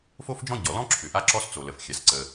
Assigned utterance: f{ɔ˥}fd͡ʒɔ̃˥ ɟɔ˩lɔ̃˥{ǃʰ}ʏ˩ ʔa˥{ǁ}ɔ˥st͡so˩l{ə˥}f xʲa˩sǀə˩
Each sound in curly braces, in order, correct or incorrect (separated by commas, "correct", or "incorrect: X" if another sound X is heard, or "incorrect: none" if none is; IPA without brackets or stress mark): incorrect: o˥, incorrect: ǁʰ, correct, incorrect: ə˩